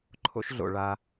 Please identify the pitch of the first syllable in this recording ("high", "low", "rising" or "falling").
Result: high